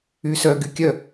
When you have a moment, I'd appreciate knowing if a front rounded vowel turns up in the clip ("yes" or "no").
yes